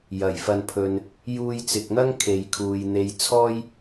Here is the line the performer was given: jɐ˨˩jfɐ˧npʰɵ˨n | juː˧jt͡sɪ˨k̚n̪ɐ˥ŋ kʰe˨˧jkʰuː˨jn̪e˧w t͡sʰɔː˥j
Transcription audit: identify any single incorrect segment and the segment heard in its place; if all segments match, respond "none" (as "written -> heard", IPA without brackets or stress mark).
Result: w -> j